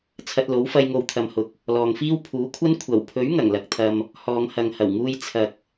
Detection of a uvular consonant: absent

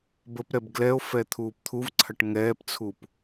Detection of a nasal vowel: absent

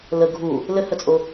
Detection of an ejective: present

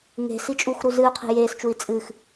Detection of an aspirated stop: present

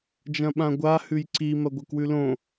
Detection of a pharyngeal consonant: absent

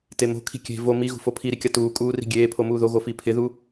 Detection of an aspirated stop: present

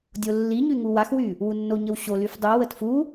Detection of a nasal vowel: absent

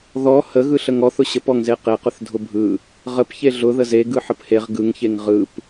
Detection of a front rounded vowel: absent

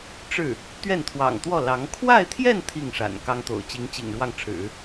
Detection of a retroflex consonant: present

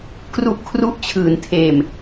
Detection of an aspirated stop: present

